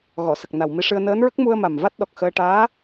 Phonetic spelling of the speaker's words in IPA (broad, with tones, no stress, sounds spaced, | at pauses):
ɣ ɔ˨˩˨ s ə˨˩ k̚ n a˨˩ w m i˧ ʂ ɨ˧ ə̯ n əː˧˥ n ɹ ə˦˥ k̚ m u˧ ə̯ m a˨˩ m v a˦˥ t̚ ɗ ɔ˨˩ k̚ x əː˧ ʈ aː˧˥